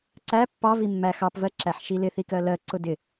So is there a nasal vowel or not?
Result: no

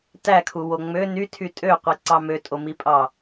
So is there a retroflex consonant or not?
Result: no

